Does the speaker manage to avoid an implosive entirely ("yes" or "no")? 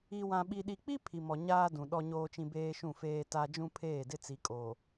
no